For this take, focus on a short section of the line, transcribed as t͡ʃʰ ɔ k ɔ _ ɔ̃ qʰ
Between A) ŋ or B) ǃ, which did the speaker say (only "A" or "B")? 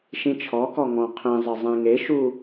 A